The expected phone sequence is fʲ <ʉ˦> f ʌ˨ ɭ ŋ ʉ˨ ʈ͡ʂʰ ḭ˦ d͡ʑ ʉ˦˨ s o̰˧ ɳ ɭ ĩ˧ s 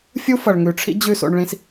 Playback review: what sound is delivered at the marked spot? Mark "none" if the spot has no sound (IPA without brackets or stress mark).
u˦